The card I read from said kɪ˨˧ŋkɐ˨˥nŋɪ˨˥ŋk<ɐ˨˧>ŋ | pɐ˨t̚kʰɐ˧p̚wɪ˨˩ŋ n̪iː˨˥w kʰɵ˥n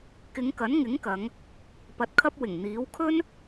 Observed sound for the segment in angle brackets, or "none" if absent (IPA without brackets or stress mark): ɐ˨˧